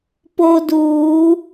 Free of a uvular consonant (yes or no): yes